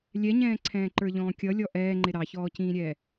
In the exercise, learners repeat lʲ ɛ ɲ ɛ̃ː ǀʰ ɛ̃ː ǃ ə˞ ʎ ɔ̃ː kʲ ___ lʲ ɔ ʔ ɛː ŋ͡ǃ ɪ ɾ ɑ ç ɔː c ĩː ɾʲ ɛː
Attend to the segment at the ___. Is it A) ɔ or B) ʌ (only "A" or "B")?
B